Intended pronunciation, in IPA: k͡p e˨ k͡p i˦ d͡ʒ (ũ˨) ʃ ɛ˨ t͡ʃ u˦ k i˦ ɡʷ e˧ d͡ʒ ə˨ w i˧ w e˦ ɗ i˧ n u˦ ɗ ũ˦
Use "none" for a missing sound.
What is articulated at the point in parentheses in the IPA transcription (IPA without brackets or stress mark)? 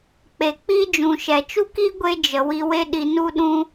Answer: ũ˨